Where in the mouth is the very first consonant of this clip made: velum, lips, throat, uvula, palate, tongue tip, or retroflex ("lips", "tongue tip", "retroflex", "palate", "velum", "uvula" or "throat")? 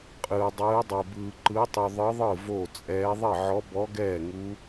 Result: uvula